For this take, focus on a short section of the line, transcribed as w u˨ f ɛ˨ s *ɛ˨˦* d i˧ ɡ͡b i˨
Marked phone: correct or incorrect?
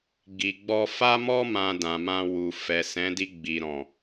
incorrect